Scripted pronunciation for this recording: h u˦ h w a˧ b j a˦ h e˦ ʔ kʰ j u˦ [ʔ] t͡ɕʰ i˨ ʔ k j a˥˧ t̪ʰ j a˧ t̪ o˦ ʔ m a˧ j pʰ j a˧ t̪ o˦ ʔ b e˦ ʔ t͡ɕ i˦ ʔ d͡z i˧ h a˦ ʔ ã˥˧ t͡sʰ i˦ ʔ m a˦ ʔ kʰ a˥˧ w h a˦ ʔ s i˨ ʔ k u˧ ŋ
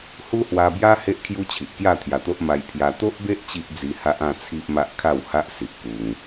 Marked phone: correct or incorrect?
incorrect